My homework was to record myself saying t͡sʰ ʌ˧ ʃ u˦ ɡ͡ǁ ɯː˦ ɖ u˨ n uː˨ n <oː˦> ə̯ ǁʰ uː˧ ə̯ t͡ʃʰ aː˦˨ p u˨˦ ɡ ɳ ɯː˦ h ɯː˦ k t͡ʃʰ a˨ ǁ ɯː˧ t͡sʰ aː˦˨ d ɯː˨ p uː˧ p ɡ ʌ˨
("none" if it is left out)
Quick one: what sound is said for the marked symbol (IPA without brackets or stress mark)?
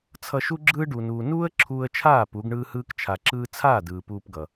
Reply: uː˦